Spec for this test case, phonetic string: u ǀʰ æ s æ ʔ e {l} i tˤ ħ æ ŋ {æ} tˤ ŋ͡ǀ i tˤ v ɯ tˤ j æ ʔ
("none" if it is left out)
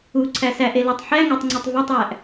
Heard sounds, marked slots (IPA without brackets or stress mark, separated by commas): l, æ